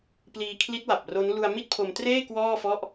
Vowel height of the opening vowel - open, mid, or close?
close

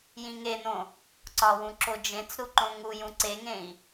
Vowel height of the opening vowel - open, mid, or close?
close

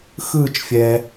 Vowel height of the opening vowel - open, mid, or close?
close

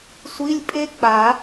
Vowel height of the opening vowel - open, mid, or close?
close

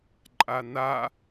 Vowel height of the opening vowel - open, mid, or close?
open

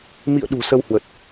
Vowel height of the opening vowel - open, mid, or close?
close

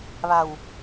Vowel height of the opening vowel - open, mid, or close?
open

